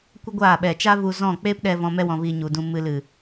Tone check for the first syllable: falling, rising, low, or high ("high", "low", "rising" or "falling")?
high